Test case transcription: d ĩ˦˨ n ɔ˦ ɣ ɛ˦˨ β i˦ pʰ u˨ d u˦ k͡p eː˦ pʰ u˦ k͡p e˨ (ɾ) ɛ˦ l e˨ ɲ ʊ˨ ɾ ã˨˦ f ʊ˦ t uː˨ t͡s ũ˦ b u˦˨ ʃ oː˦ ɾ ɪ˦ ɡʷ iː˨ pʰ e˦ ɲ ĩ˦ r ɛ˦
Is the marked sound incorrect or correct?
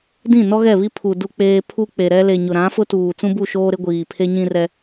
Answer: correct